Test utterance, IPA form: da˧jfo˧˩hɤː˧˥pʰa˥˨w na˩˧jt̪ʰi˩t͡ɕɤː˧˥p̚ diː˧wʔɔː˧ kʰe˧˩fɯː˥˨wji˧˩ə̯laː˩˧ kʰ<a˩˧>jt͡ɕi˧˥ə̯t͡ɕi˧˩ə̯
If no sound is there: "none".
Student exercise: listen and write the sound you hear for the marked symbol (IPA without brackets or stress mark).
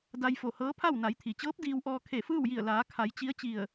a˩˧